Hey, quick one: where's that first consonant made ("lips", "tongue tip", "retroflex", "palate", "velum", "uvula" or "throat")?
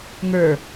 velum